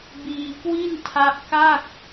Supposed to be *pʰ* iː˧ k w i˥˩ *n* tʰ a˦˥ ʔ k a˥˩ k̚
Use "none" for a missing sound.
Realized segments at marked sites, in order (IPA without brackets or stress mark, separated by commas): b, n